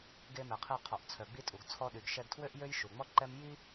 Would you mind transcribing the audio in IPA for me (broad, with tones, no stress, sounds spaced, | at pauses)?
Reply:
ɡ e˧ m ɛ˩ qʰ e˧ qʰ ɔ˩ ʔ t͡sʰ œ˩ ɡ͡b i˧ tʼ u˩ ɡ t͡sʰ ɔ˧ ɗ y˩ ɡ ʃ ɛ˧ ɡ tʰ w ø˥ ʔ j ø˥ j ʃ u˩ ŋ͡m ɔ˥ ǃ ɛ˥ m j i˥